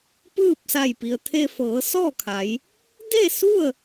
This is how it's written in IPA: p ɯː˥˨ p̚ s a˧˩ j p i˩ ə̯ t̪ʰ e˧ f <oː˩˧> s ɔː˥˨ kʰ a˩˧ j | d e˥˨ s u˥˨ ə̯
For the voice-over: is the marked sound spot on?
no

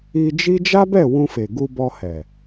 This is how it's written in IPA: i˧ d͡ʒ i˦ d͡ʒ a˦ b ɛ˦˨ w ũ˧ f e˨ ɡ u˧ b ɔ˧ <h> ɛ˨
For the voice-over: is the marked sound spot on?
yes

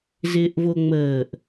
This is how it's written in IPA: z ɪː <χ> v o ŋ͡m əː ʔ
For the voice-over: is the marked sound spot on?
no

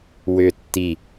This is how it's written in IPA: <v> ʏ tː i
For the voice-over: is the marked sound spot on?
no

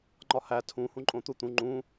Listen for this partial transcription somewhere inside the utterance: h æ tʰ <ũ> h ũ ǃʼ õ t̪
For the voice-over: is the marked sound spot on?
yes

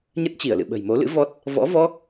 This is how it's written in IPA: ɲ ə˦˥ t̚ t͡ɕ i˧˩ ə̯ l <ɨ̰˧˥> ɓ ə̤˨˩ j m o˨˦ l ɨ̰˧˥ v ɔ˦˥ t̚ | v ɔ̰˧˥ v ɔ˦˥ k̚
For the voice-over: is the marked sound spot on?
no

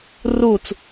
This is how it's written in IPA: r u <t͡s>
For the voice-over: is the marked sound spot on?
yes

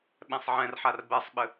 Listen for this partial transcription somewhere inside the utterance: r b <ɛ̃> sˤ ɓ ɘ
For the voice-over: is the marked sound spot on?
no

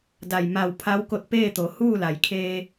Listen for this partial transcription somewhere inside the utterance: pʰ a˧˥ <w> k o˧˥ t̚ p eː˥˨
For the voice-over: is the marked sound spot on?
yes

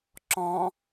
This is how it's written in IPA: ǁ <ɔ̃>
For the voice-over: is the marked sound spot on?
yes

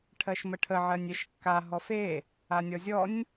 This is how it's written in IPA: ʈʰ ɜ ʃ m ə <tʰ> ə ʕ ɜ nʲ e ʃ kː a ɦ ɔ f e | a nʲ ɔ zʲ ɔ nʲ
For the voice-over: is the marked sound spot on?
no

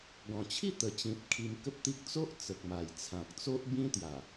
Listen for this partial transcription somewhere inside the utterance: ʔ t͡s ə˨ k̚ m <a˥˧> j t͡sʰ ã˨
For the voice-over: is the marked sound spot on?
no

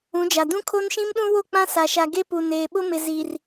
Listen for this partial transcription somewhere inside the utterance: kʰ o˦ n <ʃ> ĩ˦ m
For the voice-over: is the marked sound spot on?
yes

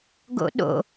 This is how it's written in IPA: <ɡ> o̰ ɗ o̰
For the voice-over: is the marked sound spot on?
yes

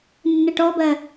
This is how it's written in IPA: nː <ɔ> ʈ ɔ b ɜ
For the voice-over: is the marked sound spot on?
no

